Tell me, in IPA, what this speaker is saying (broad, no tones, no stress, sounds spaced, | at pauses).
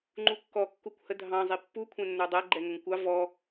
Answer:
ŋ͡ǃ u kː ɔ kː u kʷ h ə dʱ ɑ̃ zˤ i pː u kʷʰ ɛ̃ nː ə˞ dˤ æ ɡ͡ǃ ɛ ŋ ə ŋ kʷ ɑ v ɔ